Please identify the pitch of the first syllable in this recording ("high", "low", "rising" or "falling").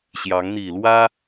rising